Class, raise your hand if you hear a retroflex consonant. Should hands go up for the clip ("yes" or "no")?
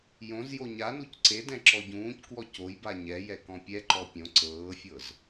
no